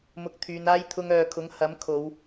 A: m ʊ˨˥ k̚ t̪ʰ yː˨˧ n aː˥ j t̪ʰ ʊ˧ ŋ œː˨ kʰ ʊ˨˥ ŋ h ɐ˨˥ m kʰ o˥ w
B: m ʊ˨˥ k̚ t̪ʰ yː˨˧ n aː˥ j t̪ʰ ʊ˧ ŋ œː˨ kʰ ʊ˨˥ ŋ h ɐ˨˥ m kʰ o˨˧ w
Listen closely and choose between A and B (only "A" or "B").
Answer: B